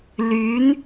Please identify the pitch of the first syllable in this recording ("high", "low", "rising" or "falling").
rising